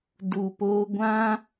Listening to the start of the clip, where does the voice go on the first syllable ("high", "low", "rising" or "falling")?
low